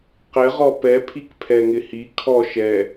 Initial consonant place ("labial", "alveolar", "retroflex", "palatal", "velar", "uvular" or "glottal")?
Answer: uvular